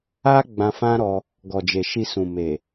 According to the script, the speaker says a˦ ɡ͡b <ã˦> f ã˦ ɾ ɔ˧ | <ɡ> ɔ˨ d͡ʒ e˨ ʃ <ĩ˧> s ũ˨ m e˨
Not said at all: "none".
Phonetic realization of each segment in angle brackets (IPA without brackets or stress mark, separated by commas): ã˧, ɡ, i˧